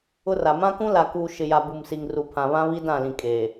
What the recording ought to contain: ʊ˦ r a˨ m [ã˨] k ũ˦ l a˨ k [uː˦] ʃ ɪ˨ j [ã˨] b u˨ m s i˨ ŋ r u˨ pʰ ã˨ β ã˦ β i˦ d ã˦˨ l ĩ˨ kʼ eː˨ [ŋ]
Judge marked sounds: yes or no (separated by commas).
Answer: no, no, no, no